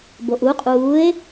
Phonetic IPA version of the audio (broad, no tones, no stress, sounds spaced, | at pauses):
b o ʔ u qʼ uː e̯